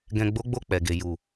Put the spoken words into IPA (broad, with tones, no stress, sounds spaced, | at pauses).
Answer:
ɡ ɛ̃˨ ɡ͡b o˨˦ ɡ͡b o˧ k͡p ɛ˨ ɡ e˨ j u˨